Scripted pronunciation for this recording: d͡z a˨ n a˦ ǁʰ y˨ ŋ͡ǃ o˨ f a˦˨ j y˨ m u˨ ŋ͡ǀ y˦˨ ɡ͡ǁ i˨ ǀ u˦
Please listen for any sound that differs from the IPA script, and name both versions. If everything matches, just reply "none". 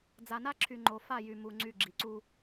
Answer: none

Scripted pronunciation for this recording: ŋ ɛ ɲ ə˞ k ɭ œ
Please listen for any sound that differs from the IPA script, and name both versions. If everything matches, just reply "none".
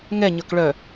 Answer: none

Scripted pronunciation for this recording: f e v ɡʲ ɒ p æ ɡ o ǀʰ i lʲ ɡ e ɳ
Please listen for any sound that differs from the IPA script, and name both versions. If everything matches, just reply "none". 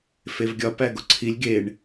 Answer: none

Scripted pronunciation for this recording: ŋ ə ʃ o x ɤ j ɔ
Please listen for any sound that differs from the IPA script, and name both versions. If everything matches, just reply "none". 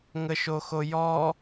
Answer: ɤ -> o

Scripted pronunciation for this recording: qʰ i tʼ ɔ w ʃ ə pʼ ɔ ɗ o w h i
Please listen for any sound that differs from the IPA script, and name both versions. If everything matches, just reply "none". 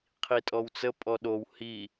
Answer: ʃ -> t͡s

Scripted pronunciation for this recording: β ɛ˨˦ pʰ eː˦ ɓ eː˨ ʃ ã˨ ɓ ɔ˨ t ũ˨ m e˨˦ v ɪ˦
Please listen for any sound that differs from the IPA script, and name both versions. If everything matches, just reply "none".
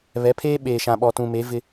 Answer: none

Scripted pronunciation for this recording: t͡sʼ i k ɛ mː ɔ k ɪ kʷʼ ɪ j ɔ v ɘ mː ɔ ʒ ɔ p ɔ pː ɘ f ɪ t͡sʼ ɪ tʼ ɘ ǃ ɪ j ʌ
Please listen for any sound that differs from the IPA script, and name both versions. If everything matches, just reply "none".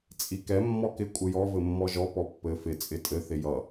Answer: ǃ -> θ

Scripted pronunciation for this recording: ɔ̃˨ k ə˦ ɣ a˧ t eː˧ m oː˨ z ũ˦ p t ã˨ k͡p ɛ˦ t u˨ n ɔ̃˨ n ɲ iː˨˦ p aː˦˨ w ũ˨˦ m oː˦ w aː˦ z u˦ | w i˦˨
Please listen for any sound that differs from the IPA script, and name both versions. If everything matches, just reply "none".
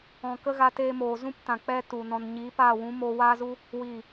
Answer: none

